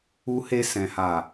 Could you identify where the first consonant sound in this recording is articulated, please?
glottal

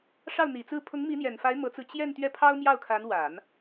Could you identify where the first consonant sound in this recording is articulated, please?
retroflex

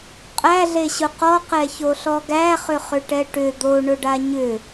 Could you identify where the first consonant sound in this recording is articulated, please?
uvular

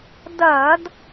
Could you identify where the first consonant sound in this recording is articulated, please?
alveolar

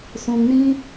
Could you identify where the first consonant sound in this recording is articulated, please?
alveolar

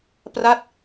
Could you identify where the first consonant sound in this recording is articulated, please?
labial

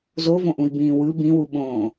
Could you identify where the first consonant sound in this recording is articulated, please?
alveolar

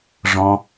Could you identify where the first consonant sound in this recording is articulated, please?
retroflex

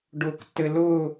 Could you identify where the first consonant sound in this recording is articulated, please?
retroflex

